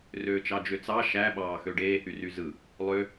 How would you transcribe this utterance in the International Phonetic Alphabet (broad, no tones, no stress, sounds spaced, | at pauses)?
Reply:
r øː t͡ʃ ɑ d͡ʒ ø t͡s ɑ ʃ æ ɓ ɑː x ø ɖ eː h y r y z ɯ | lˠ ø